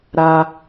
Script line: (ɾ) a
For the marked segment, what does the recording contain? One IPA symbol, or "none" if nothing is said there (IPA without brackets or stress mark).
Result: ɾ